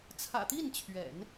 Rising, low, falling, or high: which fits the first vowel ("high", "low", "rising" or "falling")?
low